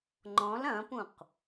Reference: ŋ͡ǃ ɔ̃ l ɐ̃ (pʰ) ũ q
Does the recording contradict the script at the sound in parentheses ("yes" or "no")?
yes